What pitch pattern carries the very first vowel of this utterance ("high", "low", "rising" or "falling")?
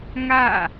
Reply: falling